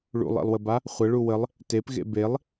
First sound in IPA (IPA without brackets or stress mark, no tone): ɭ